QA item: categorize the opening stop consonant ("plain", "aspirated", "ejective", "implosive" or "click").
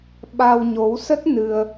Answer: implosive